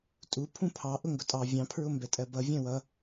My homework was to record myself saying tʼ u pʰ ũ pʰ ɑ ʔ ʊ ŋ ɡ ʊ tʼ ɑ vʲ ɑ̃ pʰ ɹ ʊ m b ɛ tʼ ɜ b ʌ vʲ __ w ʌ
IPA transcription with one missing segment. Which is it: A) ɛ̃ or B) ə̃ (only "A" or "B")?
A